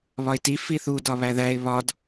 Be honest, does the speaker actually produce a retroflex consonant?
no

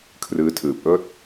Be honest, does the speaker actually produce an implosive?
no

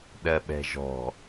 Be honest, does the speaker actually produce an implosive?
yes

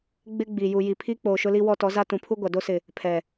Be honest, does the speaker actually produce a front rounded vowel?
no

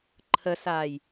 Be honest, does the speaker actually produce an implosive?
no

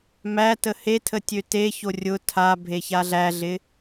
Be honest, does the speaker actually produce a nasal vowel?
no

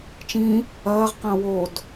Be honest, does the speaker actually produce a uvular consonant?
yes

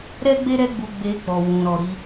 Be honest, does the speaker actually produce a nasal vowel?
yes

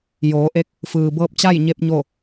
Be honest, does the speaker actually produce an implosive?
no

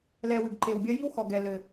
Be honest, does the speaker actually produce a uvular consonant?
no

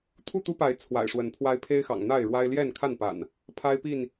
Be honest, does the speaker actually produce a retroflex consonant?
yes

